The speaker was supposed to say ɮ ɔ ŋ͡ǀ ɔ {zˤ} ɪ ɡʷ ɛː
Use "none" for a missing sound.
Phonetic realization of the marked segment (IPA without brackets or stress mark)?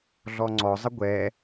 zˤ